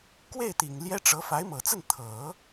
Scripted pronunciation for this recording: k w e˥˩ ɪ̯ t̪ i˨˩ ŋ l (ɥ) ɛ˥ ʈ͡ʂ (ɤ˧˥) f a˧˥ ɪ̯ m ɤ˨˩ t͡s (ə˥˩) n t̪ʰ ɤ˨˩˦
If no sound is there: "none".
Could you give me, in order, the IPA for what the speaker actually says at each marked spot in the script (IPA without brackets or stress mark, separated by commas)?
j, ɤ˧˥, ə˥˩